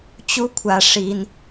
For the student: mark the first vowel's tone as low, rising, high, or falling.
rising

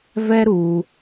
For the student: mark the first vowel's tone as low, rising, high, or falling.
high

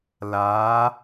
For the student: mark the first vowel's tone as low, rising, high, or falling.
rising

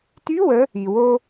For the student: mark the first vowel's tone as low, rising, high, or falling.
rising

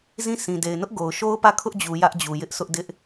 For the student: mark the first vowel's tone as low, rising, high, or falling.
falling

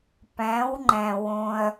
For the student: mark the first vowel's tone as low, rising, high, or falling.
rising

